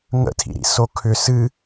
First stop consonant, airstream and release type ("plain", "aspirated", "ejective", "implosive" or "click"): aspirated